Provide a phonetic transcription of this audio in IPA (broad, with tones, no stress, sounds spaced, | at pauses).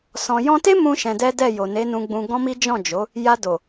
s ɔ̃˨ j ɔ̃˧ t e˦ m ũ˦ ʃ ɛ̃˧ d ɛ˦ d ɛ˦˨ j o˨ n e˨˦ n ũ˧ ɡ͡b ũ˧ ɡ ɔ̃˦ m i˦ d͡ʒ ɔ̃˦˨ d͡ʒ o˨˦ | j a˧ d o˨